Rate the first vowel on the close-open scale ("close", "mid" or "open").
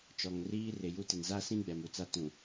mid